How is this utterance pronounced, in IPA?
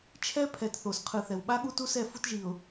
t͡ʃʰɛ˦pʰɛ˨t θo˨s qʰɯ˨θɛ˨wɓa˦ ɠu˦tu˦sɛ˦˨ fu˦tʒi˨ʊ̯

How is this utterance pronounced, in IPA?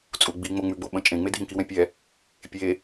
t͡sʼuɡ͡bi ŋ͡moŋ͡mʉɡ͡bo ɓə̃t͡ʃʼẽŋ͡me dʱĩkiwɛ̃pʲɛ | pʲe

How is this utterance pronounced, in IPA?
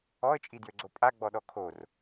ɔə̯t͡ʃʼidjøɡ͡ǀo pʼaɡ͡bɔɗɔ kʰor

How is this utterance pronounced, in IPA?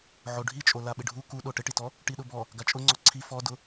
ʕoɖʱit͡ʃʼo laɓɪɖʱu kuɗo ʈɪʈitɔ | ʈiɗʊbɔ | ɡat͡ʃʼʊŋ͡ǀɔ ǀʰi fɔdʊ

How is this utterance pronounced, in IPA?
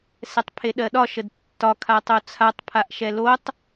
sɛtˤpʰeɗɜɗɒ ʃədtːɒ kʰatˤot͡sʰatˤ pʰaʔʃɛlotˤ

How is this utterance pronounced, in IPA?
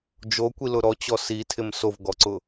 d͡ʒokʷilʊ ɾɔt͡ɕɔ sitʰɪm sovɡɔǀʊ

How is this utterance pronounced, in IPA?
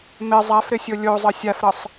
mɪ zˤafɾɪsʲo lʲozˤə sʲafɾəsˤ

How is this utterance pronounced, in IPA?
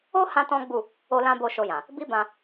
o˦ hã˦tɔ̃˦ɡ͡bu˦˨ | o˦lã˦ bo˦˨ʃo˧jã˨ | bi˦bã˧

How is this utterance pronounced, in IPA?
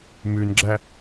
mʉnɡ͡ǁæ

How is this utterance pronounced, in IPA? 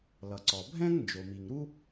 lʌ˩ǀɔ˩ bʱɛ̃˥ŋ nd͡ʒo˩mi˩ŋɾu˥

